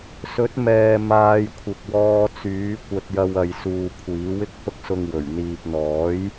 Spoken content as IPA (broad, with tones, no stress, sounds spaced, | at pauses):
s ɵ˨˥ t̚ m ɛː˨ m aː˧ j kʷʰ ɪ˨ k̚ w ɔː˧ t͡s yː˨˥ kʷ ɐ˧ t̚ j ɐ˧ w ɐ˨ j s uː˨ kʷʰ iː˨˥ w ɪ˥ k̚ h ʊ˥ k̚ s ʊ˧ ŋ w ɵ˨˩ ɥ n̪ iː˨ p̚ n̪ ɔː˨˥ j